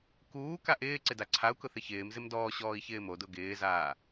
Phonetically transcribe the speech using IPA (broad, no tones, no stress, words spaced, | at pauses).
kuːka ʔɪː ǀɪdaǀʰau̯kʊ θɪçɪːmzɪm dɔːɕɔːi̯ çɪːmodʊ ɡɪːzaː